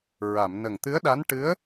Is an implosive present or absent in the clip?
present